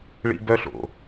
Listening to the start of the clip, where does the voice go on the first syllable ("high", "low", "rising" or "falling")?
high